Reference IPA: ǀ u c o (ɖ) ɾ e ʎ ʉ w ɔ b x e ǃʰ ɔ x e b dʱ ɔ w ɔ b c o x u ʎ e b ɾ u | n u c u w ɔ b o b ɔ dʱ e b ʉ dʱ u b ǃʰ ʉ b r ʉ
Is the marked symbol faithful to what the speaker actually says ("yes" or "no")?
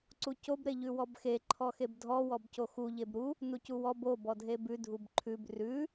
no